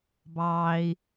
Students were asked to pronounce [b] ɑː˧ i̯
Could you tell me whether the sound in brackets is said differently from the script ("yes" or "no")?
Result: no